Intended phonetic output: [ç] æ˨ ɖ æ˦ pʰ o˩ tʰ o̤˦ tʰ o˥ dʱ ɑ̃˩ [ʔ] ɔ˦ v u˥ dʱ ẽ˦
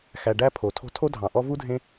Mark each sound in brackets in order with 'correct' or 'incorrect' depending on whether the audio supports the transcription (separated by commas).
incorrect, correct